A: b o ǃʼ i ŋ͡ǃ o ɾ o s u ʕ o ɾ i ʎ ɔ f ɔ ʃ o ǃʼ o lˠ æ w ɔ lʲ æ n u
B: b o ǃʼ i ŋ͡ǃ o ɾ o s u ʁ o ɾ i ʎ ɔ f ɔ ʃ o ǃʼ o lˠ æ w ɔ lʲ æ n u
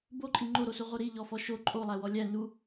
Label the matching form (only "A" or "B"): B